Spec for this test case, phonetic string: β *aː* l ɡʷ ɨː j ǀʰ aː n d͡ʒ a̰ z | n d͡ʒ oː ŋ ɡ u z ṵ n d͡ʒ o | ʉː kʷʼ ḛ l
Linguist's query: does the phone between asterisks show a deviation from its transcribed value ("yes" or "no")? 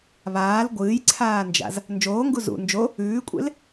no